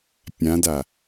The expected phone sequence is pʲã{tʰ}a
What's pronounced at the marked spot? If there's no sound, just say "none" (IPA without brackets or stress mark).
d